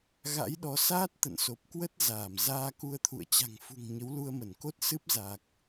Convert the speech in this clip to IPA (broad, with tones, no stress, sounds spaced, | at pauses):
ɣ a̰˧˥ j ɗ ɔ˨˦ s aː˦˥ t̚ t̪ ə̰˧˨ n s o˨˩ p̚ k w ə˦˥ t̚ z aː˧˩ m z aː˧ k u˧ ə̯ t̪ʰ ṵ˧˨ ə̯ t͡ɕ a̤˨˩ ŋ f ṳ˨˩ ŋ ɲ ə˨˦ w l u˧ ə̯ m ə˧˩ n k o˦˥ t̚ s ɨ˦˥ p̚ z a˨˩ k̚